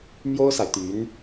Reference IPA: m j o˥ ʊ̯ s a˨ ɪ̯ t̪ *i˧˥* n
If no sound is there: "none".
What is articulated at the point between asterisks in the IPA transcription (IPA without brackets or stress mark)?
y˧˥